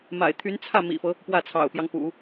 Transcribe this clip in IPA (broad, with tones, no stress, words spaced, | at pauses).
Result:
ma̰˨˩ɪ̯t̪ʰy˧˥nt͡sʰä˥˩ mḭ˨˩fɤ˦ | pwä˥˩t͡sʰɑ̰˨˩ʊ̯pjɑ˦ŋ pṵ˨˩˦